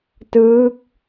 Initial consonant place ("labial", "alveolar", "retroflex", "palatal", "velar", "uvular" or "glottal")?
alveolar